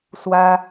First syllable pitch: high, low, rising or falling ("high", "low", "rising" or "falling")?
high